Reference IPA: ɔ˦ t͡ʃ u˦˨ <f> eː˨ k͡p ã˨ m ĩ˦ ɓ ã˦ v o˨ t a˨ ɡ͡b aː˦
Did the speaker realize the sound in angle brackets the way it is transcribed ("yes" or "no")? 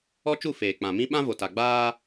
yes